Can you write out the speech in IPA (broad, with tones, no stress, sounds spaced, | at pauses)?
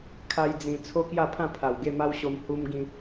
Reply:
kʰ a˦ j d͡z ĩ˧ t͡sʰ o˦ k j a˥˧ pʰ ã˥˧ pʰ a˨˩ w ɡ e˥˧ m a˦ w ɕ o˧ m h u˧ m ɡ ĩ˧